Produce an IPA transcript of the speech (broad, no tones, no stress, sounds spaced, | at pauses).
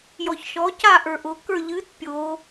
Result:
j ɔ ç ʃ ɔ c a ʔ ə˞ ʔ ʊ k ə˞ ʎ ɨ t pʲ o